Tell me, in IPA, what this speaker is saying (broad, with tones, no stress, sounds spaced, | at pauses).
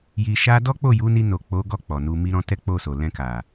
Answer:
j i˨ ʃ a˧ d ɔ˦ k͡p o˦˨ j u˨˦ n i˧ n o˨ k͡p o˨˦ ɡ ɔ˦˨ k͡p ɔ˨ n u˧ m i˧ ɾ ɔ̃˧ t ɛ˦ k͡p o˦˨ s o˨ l ɛ̃˧ k a˨